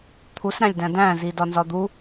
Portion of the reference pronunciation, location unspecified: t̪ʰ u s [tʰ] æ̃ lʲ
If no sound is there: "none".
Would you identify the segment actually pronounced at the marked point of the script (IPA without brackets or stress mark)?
ɾ